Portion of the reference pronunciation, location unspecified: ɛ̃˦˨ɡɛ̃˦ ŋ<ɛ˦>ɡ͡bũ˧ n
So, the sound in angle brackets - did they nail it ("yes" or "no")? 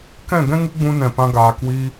no